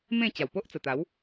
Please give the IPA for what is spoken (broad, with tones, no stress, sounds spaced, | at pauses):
m ẽ˥˧ t͡ɕ a˨˩ w p o˦ ʔ t͡s ə˨˩ t̪ a˨˦ w